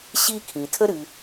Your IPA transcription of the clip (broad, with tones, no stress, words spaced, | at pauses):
ɕi˦kʰĩ˩ tʰə˥ɾɨ˨